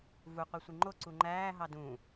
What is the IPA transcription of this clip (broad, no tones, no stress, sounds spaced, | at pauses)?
v u qʷ ɯ sʷ i ŋ͡ǃ o ǀ u ŋ͡ǃ æː ɦ ɑ d ũ